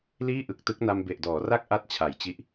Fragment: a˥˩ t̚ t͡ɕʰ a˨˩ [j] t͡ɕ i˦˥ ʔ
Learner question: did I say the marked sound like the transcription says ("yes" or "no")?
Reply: yes